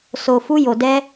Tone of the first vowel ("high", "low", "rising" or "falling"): low